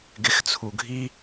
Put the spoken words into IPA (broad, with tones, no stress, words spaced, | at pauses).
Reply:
ɡɪ˧xt͡sʰu˨ɡʱi˦